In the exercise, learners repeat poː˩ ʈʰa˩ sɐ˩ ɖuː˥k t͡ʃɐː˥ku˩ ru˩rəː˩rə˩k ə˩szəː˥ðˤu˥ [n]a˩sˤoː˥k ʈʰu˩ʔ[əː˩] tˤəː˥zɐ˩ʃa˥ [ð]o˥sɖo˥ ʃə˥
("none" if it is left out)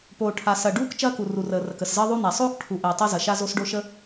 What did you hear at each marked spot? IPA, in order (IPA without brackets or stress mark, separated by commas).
n, əː˩, z